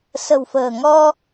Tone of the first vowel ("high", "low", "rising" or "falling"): low